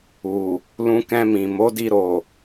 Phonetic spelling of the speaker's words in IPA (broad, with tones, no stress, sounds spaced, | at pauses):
u˨ | l ũ˧ k ɛ̃˧ m ĩ˨ m o˨˦ d i˧ ɾ o˨